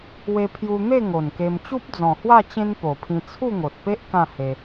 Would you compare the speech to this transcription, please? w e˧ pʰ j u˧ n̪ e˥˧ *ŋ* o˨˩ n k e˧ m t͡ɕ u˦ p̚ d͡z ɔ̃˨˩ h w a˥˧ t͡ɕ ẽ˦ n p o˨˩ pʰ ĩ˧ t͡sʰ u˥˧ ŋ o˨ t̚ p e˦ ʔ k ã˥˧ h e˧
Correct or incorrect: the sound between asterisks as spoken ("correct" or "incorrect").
correct